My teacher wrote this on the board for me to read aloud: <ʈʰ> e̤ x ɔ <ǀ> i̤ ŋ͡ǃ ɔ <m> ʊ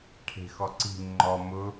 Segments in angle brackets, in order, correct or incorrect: correct, correct, correct

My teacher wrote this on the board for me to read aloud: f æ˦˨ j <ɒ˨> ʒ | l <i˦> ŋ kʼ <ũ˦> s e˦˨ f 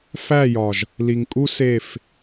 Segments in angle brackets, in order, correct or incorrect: correct, incorrect: i˨, incorrect: u˦

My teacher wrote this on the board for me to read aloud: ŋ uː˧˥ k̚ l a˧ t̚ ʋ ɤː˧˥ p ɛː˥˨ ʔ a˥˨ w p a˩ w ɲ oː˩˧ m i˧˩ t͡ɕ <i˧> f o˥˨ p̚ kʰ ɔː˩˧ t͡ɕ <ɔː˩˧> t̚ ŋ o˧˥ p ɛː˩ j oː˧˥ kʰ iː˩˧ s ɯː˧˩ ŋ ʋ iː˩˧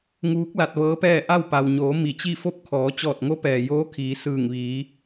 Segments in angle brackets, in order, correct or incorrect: incorrect: i˥˨, incorrect: ɔː˧˩

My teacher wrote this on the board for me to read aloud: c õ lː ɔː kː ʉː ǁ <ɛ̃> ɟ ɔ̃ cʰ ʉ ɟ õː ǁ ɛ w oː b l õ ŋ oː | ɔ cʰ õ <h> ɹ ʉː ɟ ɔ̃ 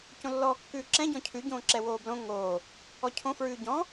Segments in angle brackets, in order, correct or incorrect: correct, incorrect: f

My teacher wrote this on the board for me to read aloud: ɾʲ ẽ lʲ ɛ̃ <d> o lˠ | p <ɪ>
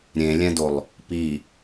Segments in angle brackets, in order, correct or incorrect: correct, incorrect: i

